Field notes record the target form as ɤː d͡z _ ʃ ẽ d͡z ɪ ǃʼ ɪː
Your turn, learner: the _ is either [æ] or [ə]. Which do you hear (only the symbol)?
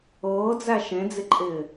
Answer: æ